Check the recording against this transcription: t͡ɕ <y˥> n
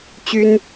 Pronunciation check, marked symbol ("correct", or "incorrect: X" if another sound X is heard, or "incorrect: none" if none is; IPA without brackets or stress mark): correct